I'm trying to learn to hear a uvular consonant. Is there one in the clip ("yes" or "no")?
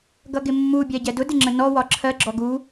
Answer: no